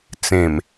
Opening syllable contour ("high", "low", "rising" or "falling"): low